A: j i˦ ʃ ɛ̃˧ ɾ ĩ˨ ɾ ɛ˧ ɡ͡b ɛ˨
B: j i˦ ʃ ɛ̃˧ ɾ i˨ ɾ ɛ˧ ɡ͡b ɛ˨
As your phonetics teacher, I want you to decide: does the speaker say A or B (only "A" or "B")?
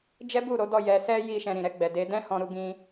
A